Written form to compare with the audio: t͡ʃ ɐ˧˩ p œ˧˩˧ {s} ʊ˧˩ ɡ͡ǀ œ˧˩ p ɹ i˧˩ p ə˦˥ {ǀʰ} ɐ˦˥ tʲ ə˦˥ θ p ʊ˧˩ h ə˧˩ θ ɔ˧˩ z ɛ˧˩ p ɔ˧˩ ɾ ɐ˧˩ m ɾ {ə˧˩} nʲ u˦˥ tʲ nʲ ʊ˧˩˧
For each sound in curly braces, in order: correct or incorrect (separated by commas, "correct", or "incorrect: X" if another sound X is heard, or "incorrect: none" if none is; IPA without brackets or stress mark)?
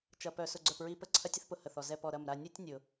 correct, correct, incorrect: a˧˩